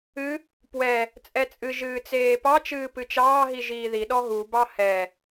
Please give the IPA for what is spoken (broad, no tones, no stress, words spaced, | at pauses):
ɨ | pwɛ | t͡sʼɛt͡sʼɨ ʒɨːt͡seːpɑ t͡ʃɨːpɨt͡ʃɑː ɦiʒiːði ɗɔɦu bɑhɛ